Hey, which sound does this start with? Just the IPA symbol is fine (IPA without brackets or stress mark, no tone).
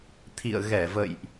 t̪ʰ